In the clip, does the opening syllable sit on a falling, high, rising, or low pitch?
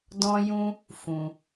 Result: high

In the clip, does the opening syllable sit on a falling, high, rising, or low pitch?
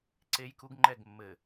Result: high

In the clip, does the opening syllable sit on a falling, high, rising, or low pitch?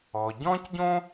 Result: low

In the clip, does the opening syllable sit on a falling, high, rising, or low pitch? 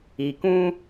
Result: low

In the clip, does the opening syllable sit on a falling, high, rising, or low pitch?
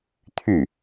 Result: falling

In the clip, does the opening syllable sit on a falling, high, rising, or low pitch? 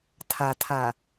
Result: low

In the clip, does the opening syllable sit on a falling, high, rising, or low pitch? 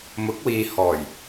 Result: rising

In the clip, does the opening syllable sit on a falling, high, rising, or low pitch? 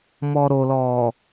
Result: low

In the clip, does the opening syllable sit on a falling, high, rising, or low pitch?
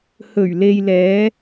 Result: low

